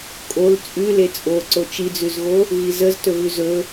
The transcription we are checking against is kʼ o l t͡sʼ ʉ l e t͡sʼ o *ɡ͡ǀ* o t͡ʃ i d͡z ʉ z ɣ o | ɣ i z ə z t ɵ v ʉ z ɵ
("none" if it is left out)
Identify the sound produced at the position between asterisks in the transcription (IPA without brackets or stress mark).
ǀ